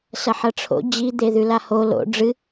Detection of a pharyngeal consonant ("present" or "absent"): present